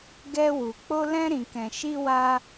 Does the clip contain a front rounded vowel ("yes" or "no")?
no